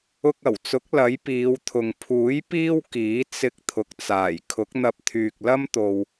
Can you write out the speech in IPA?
ʊ˧ k̚ ɐ˨˩ w t͡s ʊ˨˥ k̚ l ɐ˨˥ j p iː˨˧ w t̪ʰ ʊ˨ ŋ pʰ uː˨˥ j p iː˥ w k iː˨˥ t͡s ɪ˧ k̚ t̪ʰ ʊ˨ k̚ t͡s aː˨˩ j kʰ ʊ˨˥ k̚ n̪ ɐ˧ p̚ t̪ʰ yː˨ k̚ l ɐ˥ m t̪ o˨ w

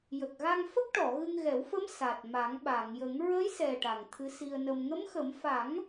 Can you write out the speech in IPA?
j ə˨˩ k̚ ɣ a˧ ŋ f ə˦˥ k̚ ʈ ɔ˨˩˨ ɣ ɨ˧ ŋ ɣ ɛ˨˩˦ w f ə˧˥ m s a˨˩ t̚ m a˨˩˦ ŋ ɓ a˨˩˨ ŋ j ə˨˩˦ ŋ ɹ ə˧˥ j s ɛ˨˩ ʈ a˨˩ ŋ t̪ʰ ɨ˧˥ s i˧ ə̯ n ə˧ m ŋ ə˧˥ m x ə˨˩˦ m f a˨˩˦ ŋ

